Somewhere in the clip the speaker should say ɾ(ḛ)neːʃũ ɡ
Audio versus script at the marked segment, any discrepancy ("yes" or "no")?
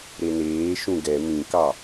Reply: yes